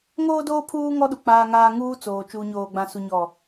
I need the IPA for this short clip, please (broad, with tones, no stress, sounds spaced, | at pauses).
ŋ oː˦ d oː˦ pʰ uː˦ ŋ ɔ˦ ɗ u˨ k͡p aː˦ ŋ aː˦ ŋ uː˦ t͡s oː˨ t͡ʃ uː˨ ɲ oː˨ ɡ͡b ã˨ s u˨ ɲ ɔ˨